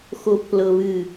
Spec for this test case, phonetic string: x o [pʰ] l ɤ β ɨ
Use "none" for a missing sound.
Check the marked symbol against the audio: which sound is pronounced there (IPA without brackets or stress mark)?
pʰ